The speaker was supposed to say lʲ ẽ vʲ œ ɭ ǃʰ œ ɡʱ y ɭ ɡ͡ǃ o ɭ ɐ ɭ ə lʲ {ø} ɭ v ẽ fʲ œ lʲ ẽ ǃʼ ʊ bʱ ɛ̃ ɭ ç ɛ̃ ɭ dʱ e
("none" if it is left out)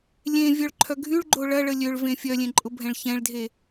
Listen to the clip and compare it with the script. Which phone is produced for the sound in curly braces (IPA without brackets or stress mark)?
ø